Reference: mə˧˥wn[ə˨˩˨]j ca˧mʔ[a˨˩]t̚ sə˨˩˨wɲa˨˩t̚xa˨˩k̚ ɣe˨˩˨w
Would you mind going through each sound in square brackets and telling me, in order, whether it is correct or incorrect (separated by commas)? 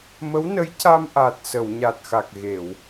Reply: incorrect, correct